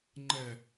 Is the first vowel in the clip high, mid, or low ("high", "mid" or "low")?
mid